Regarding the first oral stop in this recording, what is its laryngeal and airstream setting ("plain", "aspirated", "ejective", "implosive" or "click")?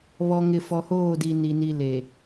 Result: plain